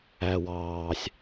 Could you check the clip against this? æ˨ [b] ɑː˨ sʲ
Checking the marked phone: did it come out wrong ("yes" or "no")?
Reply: yes